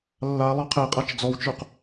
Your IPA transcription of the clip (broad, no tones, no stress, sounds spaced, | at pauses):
lː a lˠ ɑ qʰ ɛ qʼ a t͡ʃ d͡z ɔ w t͡ʃ ə˞ q